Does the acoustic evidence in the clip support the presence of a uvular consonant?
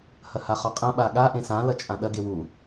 yes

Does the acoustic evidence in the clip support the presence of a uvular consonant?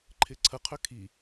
yes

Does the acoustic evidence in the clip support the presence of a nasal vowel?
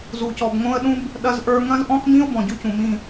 yes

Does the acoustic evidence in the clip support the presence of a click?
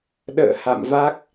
no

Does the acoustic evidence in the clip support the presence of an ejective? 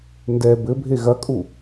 yes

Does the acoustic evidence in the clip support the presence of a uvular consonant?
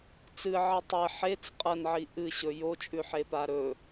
yes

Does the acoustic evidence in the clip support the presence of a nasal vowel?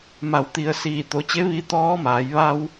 no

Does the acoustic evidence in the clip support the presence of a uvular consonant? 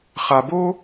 yes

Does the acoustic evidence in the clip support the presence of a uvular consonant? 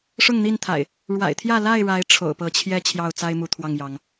no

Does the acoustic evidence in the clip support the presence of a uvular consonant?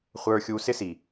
yes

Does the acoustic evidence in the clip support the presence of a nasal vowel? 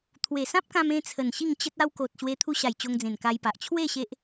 yes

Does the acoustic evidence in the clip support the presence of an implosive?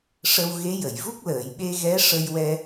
yes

